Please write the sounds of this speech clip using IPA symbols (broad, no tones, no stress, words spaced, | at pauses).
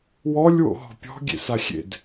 wɔlʲ wo̰ɦɔ̤pʲɔ̤ ɡʲḛsaxʲḛd